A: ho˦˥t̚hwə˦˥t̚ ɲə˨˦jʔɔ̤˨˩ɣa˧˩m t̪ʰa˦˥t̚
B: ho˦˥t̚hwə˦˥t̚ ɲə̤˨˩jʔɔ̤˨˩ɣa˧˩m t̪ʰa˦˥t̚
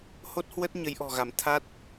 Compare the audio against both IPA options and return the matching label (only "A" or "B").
A